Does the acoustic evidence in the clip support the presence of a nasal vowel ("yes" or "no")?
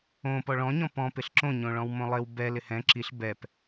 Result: yes